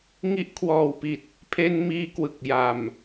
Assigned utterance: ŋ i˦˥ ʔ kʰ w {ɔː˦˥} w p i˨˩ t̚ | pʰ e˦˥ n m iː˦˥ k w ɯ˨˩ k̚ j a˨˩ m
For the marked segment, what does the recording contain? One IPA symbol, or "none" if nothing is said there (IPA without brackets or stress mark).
ɔː˨˩